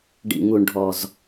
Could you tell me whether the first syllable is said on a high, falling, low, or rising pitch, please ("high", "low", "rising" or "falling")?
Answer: low